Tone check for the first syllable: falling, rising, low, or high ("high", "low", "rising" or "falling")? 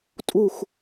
falling